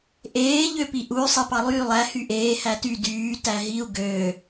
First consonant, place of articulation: glottal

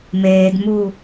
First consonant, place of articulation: labial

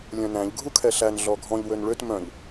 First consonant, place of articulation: alveolar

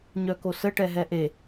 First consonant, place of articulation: palatal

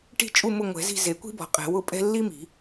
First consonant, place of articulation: retroflex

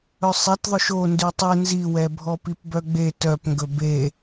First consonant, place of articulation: alveolar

